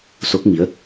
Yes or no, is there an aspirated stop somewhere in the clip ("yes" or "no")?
no